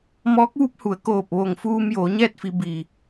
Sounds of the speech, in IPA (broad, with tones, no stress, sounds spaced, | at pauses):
m ɔː˧˥ k̚ ʋ u˧˥ p̚ h u˩˧ ə̯ k oː˧˩ p̚ ʋ o˧˩ ŋ f uː˧ m j oː˩˧ ɲ ɛː˥˨ t̚ f i˩˧ b i˩